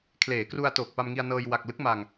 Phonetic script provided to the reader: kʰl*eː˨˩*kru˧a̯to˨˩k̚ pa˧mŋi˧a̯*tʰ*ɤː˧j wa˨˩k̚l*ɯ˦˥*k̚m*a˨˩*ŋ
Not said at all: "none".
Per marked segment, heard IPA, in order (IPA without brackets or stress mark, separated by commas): eː˩˦, n, ɯ˦˥, a˧